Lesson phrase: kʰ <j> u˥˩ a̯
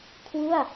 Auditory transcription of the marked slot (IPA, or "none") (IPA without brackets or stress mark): w